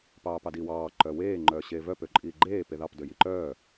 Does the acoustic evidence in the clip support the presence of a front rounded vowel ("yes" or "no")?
yes